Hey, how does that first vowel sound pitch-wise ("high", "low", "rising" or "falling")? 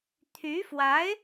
rising